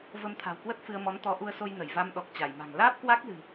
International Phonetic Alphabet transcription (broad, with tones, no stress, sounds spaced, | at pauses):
v ə˧ m t̪ʰ a̤˨˩ w k w ə˦˥ t̚ f ɨ˧ ə̯ m ɔ˨˦ n t̪ ɔ˨˦ ʔ u˧ ə̯ s o˧ j n ə˧˩ j v a˧ m ɗ ɔ˨˩ k̚ t͡ɕ a˧˩ j m a̤˨˩ ŋ l aː˦˥ p̚ k w a˦˥ k̚ l ɨ̤˨˩